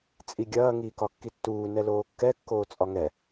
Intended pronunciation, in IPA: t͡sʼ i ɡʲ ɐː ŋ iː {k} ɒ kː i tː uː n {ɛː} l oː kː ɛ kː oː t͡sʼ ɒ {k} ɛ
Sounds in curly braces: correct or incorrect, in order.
correct, incorrect: ɛ, incorrect: ŋ

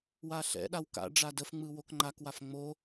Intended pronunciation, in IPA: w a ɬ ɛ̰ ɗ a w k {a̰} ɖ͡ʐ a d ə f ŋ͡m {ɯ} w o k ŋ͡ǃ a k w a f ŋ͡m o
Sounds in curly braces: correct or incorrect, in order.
correct, correct

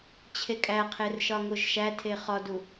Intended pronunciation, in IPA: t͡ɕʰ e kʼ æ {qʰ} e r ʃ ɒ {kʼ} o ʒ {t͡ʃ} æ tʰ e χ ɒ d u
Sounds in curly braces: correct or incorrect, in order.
correct, incorrect: ŋ, incorrect: ʃ

